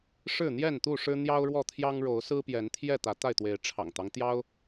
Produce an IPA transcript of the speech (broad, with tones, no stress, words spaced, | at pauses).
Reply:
ʂɻ̩˥˨n̪jɛ˥˨nt̪u˥˨ʂɻ̩˦ n̪jɑ˦ʊ̯ɻwɔ˥˨t̪ʰjɑ˦ŋ ɻo˨˦ʊ̯sɹ̩˦pjɛ˨˦nt̪ʰjɛ˥˨ t̪ä˨˦t̪a˥˨ɪ̯t̪we˨˦ɪ̯ ʈ͡ʂʰɑ̰˨˩ŋt̪ɑ˦ŋ t̪jɑ˦ʊ̯